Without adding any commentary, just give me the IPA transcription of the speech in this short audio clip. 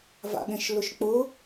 v a̰ ɠ ẽ ʃ l ʊ ʃ k͡p ʊ

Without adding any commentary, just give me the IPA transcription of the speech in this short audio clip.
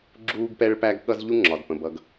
ɡ͡ǁ uː˥ ɡ p ɛ˥ ɭ p æ˥ ɡ ɠ ʌ˥ z ʎ u˥ ŋ͡ǁ ɒ˩ d p ə̃˩ b ʌ˩ ɡ

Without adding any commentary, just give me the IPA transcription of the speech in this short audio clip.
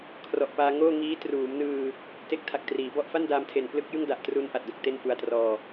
kʰ r ɔ˨˩ ʔ p aː˧ ŋ oː˥˩ ŋ iː˦˥ t r uː˩˦ m n ɯː˧ | t e˦˥ k̚ tʰ a˨˩ k̚ t r iː˩˦ b ɔ˥˩ ʔ f a˥˩ n d aː˧ m tʰ e˨˩ n p l ɯ˥˩ k̚ j ɯ˥˩ ŋ d a˨˩ ʔ t r uː˧ n ʔ a˨˩ t̚ d o˨˩ k̚ t e˥˩ n f u˧ a̯ t r ɔː˧

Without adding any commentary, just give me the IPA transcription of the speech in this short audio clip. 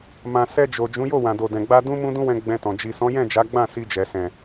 m ã˨ s ɛ˧ d͡ʒ o˨ d͡ʒ ũ˨˦ j o˦˨ w ã˨ d o˨ d ɛ̃˨ ɡ͡b a˧ d ũ˦ m ũ˦ d ũ˦ w ɛ̃˧ ɡ͡b ɛ̃˧ t ɔ̃˨ d͡ʒ i˨ s ɔ̃˨˦ j ɛ̃˦˨ d͡ʒ a˨˦ ɡ͡b ã˦˨ s i˧ d͡ʒ ɛ˨ s ɛ̃˨

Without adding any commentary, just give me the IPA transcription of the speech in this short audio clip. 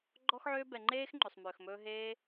ɡ͡ǃ ɔ˦ x ʕ øː˦ b ɛ˧ ŋ͡ǃ eː˦ x ŋ͡ǃ ø˧ sˤ m øː˧ x m ɵː˦ ɦ eː˦

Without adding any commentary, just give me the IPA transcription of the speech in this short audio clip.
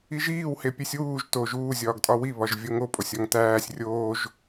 i ʒ iː w h e pʲ e sʲ w uː ʒ t o ʒ uː zʲ ɒː ɡ tʼ ɒ w i β ɒ ʒ vʲ o ŋ o pʼ o sʲ ɒ ŋ t æː sʲ rʲ oː ʒ

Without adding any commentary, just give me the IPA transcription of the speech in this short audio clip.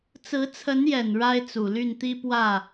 t͡s ɹ̩˧˥ t͡sʰ ə˧˥ n j ɛ˨˩ n ɻ a˥ ɪ̯ t͡s u˨˩ l y˥˩ n t̪ i˥ p w ä˥˩

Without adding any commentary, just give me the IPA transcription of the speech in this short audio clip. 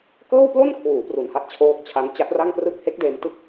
k ɤː˥˩ w p l o˥˩ n kʰ w uː˩˦ p r u˨˩ n h a˦˥ t̚ t͡ɕʰ oː˦˥ k̚ t͡ɕʰ a˦˥ n t͡ɕ a˦˥ t̚ r a˥˩ ŋ p r ɯ˥˩ k̚ h e˦˥ k̚ d eː˧ m t ɯ˥˩ k̚

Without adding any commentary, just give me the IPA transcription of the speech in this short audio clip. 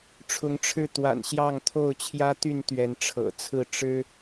ʈ͡ʂʰ ʊ˨˦ ŋ ʈ͡ʂʰ ɻ̩˥˨ t̪ w a̰˨˩ n ɕ j ɑ˥˨ ŋ t̪ʰ o˥˨ ʊ̯ t͡ɕʰ j ä˦ t̪ y˥˨ n t̪ ɥ ɛ˨˦ n ʈ͡ʂʰ ɤ̰˨˩ t͡sʰ ɹ̩˥˨ ʈ͡ʂ ɻ̩˦

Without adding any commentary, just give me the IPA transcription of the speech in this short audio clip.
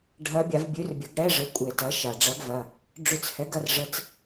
ɖʱ ɐ˧˥ bʲ a˩˥ v bʲ ʉ˧˥ r bʲ ɐ˩˥ ɡ ɽ ɛ˧˥˧ ʐ ə˩˥ kʷʼ e˧˩˧ t ɐ˩˥ ʃ a˩ ɖ͡ʐ ɐ˧˥ ɡ v ɐ˩˧˩ | ɖ͡ʐ ʉ˧˩˧ t͡s h ɛ˩˥ ɡ ɐ˩˧˩ r ʐ ə˧˥˧ t͡s

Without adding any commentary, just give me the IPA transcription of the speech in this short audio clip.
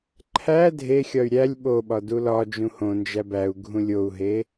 ǃʰ æ dʱ e xʲ ɒ y̯ ɾʲ æ lʲ ɓ o ɓ ɒ d u l ɒ d͡ʒ ũ h õ n d͡ʒ æ b æ u̯ ɡʱ ũ lʲ o u̯ ɦ e

